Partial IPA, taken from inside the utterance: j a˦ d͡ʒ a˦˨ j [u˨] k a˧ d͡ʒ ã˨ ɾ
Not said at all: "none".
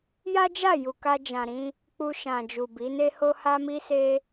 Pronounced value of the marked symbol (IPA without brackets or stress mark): u˨